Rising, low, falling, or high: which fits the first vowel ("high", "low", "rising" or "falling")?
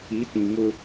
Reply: rising